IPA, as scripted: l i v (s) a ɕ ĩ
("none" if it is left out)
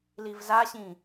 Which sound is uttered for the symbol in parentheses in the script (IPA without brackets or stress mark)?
z